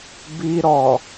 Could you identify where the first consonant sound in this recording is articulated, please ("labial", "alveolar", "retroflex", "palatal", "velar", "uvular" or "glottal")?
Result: labial